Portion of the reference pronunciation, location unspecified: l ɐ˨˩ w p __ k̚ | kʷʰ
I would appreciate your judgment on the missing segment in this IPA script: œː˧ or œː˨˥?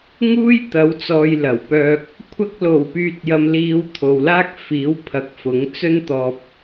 œː˧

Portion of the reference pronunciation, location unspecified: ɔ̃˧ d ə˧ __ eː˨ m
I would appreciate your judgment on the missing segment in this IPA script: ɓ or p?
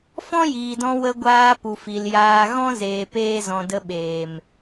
ɓ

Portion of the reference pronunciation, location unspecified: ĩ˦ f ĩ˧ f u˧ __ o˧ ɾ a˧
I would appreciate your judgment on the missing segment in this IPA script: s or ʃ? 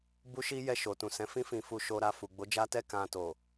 ʃ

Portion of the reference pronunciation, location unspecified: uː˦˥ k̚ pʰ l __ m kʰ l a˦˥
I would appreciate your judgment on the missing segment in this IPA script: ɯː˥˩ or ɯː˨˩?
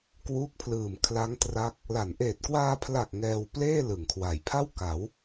ɯː˨˩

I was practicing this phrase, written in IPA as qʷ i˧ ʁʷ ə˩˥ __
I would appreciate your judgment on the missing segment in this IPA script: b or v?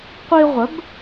b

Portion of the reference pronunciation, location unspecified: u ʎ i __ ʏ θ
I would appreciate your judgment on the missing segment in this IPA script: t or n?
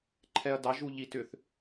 t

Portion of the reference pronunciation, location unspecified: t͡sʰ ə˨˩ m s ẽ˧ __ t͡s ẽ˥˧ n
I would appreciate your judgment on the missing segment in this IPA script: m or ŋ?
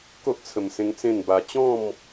ŋ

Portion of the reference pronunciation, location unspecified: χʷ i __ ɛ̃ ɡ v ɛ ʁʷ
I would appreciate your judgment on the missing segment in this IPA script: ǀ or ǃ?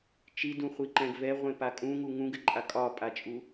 ǃ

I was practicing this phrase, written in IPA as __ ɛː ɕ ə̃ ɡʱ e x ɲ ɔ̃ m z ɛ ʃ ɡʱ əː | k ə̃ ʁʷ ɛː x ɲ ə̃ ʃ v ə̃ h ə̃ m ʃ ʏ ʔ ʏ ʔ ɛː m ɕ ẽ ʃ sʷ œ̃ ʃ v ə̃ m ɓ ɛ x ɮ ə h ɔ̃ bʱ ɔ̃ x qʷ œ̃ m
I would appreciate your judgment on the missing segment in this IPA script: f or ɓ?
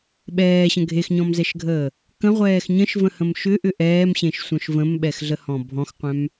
ɓ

